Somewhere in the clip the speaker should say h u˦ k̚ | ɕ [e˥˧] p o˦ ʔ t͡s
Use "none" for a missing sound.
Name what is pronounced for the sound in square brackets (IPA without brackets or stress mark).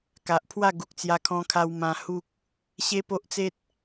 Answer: e˦